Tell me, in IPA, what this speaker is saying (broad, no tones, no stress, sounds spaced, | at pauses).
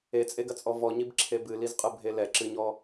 e t͡sʼ e ɡ ɐ t͡sʼ ɔ v ɔ ɲ i b ǁʰ e b ɨ l i z qʼ ɨ bʱ e l ɛ ǁ ɨ ɲ ɔ